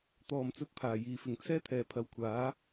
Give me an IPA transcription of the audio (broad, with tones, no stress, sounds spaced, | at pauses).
t̪ ɔː˨ m t͡s ɵ˧ t̚ pʰ aː˨˩ j iː˨˩ f ɪ˨˩ ŋ t͡sʰ ɛː˥ t̪ʰ ɛː˨˩ pʰ ɐ˨˥ w kʷʰ aː˨˥